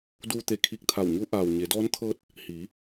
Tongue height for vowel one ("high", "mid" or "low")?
high